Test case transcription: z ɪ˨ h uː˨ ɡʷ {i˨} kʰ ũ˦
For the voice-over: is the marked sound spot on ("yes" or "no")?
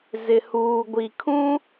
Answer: yes